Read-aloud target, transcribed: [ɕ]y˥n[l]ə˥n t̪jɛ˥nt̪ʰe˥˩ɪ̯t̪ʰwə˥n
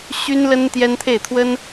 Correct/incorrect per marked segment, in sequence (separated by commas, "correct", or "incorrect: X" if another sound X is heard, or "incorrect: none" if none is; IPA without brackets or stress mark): correct, correct